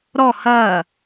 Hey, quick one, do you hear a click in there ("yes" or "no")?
no